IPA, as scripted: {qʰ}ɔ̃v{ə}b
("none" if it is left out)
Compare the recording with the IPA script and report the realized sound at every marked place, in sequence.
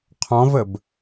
qʰ, ə

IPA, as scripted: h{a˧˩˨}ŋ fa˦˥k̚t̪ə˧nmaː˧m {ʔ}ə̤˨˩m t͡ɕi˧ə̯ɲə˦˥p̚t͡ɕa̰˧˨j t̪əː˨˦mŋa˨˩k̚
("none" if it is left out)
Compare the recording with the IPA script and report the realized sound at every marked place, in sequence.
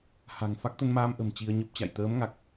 a̤˨˩, ʔ

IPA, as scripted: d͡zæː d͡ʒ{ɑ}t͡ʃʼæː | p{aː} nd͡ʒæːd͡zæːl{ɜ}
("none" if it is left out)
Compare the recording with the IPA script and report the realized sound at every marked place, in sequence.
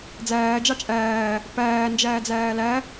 ɑ, æː, æ

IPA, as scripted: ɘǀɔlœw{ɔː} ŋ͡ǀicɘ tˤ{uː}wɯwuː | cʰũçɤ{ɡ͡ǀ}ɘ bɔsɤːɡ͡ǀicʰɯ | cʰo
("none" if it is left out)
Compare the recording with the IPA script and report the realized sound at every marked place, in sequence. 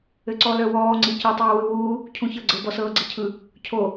ɔː, uː, ɡ͡ǀ

